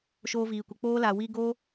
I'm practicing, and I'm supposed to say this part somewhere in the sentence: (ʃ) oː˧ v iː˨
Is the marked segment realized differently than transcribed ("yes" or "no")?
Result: no